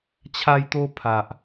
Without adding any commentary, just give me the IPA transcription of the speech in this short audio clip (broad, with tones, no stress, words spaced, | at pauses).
t͡ɕʰa˧jt̪o˧pʰa˨ʔ